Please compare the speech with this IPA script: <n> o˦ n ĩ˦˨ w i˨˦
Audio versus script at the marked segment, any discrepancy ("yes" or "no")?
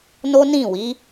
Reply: no